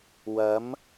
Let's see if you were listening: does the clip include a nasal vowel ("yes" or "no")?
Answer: no